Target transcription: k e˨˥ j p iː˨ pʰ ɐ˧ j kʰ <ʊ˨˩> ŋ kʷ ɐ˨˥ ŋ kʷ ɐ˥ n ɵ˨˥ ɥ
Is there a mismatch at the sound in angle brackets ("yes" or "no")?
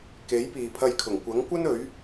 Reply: no